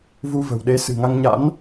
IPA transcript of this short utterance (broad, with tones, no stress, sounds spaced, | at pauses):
v u˧ v ə̤˨˩ w ɗ e˨˦ s ɨ̤˨˩ ŋ a˧ ŋ ɲ a̰˧˥ n